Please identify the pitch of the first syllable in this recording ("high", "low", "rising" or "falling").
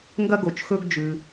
high